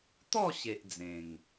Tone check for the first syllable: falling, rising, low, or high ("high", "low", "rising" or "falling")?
falling